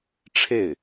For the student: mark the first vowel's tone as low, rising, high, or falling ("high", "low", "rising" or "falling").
falling